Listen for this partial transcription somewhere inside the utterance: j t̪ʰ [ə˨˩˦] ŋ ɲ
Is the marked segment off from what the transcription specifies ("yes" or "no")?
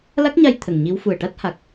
yes